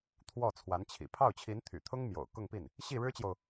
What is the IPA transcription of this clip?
t̪ʰwɔ˥˩ t͡sʰwa˧˥nt͡ɕʰḭ˨˩ pʰɑ˥˩ʊ̯t͡ɕʰi˧˥nt̪ʰy̰˨˩t̪ʰʊ˥ŋ mjo̰˨˩ʊ̯ kʊ˥˧ŋpi˥˩n | ɕi˥˩ɻɻ̩˥t͡ɕjo˨ʊ̯

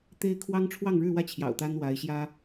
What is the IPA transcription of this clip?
t̪e˥ɪ̯ kʰwɑ˥ŋ ʈ͡ʂʰwɑ˥˧ŋɻɻ̩˥˧wä˥˩t͡ɕʰjɑ̰˨˩ʊ̯ t̪a˥nwa˧˥ɪ̯ɕjä˥

